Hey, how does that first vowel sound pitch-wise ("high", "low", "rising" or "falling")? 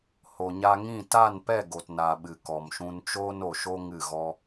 low